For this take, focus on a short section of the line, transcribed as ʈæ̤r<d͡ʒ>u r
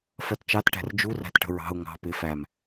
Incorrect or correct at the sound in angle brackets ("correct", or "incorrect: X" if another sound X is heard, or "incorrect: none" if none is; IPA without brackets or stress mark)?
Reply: correct